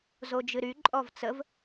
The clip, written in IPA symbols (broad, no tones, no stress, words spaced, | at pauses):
zod͡ʒɨɾy ǃʼɔvt͡səv